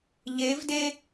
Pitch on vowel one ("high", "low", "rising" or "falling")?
rising